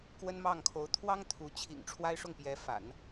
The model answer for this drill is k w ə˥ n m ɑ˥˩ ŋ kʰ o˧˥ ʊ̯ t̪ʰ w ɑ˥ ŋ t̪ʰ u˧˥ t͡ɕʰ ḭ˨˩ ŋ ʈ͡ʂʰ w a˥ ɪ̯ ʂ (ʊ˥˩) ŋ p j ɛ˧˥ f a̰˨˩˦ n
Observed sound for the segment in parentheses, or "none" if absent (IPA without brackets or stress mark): ʊ˥˩